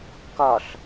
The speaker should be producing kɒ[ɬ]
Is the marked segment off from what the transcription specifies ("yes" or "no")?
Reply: no